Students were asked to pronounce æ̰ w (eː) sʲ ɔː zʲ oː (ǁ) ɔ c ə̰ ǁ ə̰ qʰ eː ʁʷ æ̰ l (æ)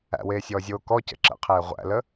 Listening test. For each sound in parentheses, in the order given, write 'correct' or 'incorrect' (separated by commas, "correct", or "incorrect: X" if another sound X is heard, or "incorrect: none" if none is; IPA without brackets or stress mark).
correct, incorrect: k, incorrect: ə